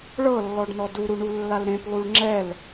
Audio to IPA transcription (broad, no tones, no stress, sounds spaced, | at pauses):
ɭ ɤ lː ɔ ɖ n ɔ d u ɾ u ɳ u lː a l ɾ ẽ p lˠ u ɭ ŋ͡ǁ ɛ l